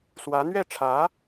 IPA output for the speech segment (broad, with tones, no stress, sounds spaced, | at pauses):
s w ä˧˥ n̪ ɥ ɛ˥˩ ʈ͡ʂʰ ä˧˥